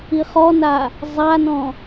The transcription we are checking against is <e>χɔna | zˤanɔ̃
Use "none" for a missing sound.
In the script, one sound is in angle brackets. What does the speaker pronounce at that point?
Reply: i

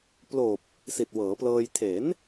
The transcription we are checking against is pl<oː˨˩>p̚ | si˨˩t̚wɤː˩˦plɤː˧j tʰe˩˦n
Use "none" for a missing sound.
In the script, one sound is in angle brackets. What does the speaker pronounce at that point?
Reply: oː˨˩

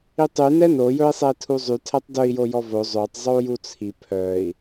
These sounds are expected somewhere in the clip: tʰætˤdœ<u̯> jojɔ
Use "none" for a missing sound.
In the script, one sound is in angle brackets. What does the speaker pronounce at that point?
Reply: i̯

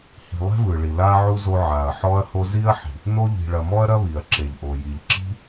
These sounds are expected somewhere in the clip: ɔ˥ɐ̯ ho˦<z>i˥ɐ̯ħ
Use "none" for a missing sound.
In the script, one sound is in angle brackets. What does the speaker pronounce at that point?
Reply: z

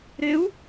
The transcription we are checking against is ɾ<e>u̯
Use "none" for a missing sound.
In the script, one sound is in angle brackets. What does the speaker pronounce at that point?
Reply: e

